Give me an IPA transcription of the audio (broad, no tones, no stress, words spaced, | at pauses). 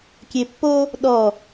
kʲepːo | ɗɔ